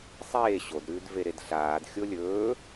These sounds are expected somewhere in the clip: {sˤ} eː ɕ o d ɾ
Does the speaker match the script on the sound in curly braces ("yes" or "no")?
yes